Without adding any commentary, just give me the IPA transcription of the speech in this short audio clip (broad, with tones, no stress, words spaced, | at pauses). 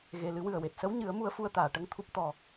ɣe˨˩˨ lɨ˨˩˦wɨ˨˩ə̯we˨˩t̚ sə˧˥wɲɨ˨˩˦ə̯ mu˧ə̯fu˧ə̯t̪aː˨˩˨ ʈə˧ŋt̪ʰu˦˥p̚ t̪ɔ˨˩